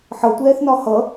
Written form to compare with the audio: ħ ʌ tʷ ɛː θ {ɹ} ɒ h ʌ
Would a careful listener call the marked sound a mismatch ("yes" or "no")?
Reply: yes